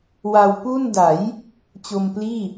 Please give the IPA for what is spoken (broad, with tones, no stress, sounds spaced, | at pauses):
w a˧ w p u˥˩ n d a˩˦ j | t͡ɕ o˧ m p l iː˥˩